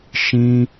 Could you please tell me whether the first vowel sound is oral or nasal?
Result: nasal